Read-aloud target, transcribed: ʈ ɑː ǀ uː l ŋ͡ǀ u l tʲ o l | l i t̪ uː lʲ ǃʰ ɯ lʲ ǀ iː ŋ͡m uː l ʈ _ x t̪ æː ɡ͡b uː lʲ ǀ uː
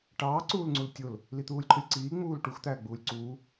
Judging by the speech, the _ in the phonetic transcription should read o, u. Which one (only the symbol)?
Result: u